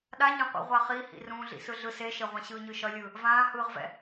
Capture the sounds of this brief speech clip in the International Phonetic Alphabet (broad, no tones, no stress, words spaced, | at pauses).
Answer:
ɗaɲɛ̃qʷḭ ʁʷaχihḭ rũːɮḭsɯɮɯ seʃeʁʷã ɕɯːɲɯʃʌlʲɯː | vãːhɯːʁvɛ̰